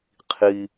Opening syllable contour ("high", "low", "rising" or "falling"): low